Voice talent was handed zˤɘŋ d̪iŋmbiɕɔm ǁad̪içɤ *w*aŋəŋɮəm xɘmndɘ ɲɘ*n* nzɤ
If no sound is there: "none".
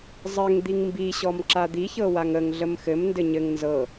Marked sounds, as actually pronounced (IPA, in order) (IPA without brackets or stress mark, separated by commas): w, ŋ